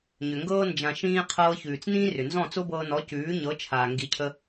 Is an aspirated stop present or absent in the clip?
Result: present